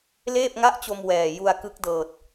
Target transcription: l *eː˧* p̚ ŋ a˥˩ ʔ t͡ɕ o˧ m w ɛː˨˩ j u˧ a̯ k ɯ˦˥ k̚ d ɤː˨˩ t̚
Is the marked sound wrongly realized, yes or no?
yes